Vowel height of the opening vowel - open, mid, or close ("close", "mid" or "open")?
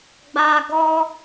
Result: open